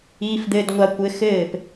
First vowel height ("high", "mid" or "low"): high